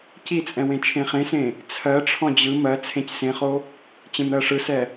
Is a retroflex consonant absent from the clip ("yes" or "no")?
no